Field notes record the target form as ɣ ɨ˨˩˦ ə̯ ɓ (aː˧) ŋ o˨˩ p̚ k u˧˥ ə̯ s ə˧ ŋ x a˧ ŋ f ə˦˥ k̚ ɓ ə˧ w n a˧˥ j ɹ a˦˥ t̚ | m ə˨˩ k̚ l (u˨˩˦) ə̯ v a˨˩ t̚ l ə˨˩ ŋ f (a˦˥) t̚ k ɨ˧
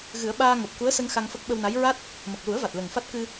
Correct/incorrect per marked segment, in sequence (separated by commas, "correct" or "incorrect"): correct, correct, correct